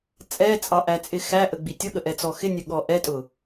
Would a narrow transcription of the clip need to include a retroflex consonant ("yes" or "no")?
no